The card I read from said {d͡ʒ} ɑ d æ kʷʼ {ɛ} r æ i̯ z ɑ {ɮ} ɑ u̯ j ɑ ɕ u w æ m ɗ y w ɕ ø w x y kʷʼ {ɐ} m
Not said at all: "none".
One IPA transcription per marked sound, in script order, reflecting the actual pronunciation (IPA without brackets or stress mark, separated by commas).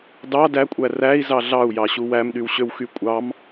d, æ, ɮ, ɑ